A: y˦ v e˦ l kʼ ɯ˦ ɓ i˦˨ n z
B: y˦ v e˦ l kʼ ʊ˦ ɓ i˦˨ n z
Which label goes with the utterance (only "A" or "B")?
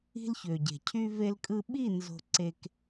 A